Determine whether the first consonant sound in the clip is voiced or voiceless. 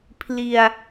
voiceless